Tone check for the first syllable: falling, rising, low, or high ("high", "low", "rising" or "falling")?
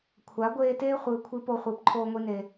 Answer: rising